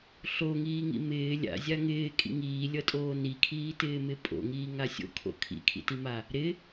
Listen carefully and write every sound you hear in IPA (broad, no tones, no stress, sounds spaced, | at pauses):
ɬ o ŋ iː ŋ ḭ m ɪː lʲ a̰ zʲ a ŋ ɪː kʼ ḭ ŋ iː lʲ ʌ tʼ oː n i kʰ iː t ɪː m ɪ pʼ o̰ ŋ iː ŋ a sʲ o̰ kʰ o̰ kʰ ḭ kʰ ḭ t i m a | ɾ ɪ